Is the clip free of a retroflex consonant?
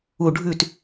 no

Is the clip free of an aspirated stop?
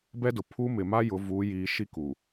no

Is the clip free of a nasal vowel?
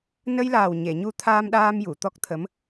yes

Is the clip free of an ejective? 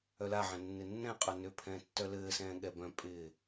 no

